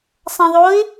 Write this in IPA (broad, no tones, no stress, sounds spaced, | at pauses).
sˤ ã ðˤ o ɪ̯